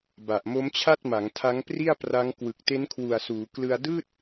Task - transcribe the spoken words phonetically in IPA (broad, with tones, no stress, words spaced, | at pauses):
ba˨˩ʔmo˦˥mt͡ɕʰa˥˩t̚ma˩˦ŋ tʰa˦˥ŋpri˥˩a̯pra˦˥ŋ kwɯ˨˩k̚te˦˥nkʰwu˨˩a̯suː˩˦ klɯ˧a̯dɯː˥˩t̚